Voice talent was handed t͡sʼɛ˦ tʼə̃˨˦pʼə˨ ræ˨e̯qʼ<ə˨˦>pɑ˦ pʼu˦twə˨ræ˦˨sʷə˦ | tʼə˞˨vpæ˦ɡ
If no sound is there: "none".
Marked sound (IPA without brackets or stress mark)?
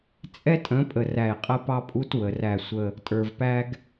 ə˦